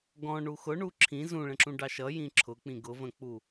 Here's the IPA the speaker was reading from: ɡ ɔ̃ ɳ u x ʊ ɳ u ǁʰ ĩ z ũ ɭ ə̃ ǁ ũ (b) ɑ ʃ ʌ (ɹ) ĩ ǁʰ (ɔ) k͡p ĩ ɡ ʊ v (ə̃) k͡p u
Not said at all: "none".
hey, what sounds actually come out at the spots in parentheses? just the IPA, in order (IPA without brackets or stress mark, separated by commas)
ɖ, j, ʊ, ə̃